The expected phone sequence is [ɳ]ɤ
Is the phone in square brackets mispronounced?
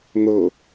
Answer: yes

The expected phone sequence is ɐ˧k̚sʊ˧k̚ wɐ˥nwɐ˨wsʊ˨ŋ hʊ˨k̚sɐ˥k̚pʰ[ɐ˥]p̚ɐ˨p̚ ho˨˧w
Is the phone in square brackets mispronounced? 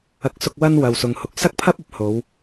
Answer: no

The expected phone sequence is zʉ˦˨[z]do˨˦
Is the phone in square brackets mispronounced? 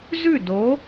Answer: yes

